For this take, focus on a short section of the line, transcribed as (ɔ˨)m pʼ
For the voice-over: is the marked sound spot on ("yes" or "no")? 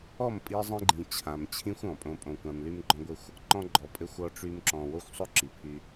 no